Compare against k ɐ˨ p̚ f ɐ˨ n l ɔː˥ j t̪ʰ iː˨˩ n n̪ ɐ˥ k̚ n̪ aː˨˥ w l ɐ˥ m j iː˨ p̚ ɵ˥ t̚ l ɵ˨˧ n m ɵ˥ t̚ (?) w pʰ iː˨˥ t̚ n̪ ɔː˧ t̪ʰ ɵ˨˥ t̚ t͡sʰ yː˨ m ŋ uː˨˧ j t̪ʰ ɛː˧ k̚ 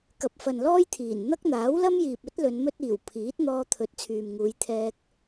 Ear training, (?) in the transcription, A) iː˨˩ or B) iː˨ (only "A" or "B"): A